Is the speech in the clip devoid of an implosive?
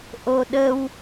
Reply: no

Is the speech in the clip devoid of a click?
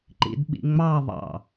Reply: no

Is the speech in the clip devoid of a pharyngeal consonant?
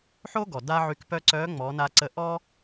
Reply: no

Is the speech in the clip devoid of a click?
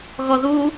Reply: yes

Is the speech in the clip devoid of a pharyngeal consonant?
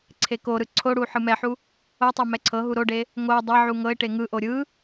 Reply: no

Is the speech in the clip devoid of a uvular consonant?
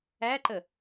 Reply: yes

